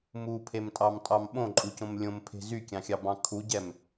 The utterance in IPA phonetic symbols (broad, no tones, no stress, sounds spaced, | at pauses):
m u pʰ e m tʼ ɑ m tʼ ɑ m ɓ õ ǃʼ u c õ m lʲ õ m pʰ e̤ z y kʲ ɑ̃ xʲ ɑ b ɑ̃ kʰ u ɟ ɛ m